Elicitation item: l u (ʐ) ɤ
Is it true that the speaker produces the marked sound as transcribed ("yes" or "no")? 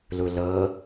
no